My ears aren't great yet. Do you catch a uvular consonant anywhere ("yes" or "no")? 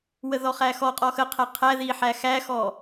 yes